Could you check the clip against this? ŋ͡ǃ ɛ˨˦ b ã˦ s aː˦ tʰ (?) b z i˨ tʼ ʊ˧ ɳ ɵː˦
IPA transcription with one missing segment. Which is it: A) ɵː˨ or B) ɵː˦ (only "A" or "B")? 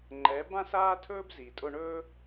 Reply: B